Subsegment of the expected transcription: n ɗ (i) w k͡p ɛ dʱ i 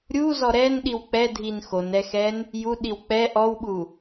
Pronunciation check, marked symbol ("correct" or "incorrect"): correct